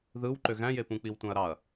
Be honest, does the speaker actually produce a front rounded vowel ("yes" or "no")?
yes